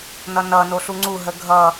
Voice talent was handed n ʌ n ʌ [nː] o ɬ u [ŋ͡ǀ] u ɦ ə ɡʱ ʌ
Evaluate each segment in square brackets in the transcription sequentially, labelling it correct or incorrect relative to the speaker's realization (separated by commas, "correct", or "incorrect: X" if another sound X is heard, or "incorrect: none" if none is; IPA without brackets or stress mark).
incorrect: n, correct